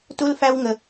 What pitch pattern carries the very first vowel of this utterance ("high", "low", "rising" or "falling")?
high